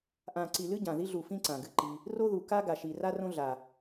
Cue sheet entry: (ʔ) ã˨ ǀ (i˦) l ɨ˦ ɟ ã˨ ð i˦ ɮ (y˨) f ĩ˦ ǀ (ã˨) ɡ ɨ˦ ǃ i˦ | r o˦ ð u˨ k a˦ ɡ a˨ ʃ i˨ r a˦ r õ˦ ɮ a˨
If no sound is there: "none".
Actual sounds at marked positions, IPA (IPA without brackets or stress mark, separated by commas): ʔ, i˨, u˨, ã˨